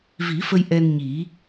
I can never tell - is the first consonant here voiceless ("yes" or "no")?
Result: no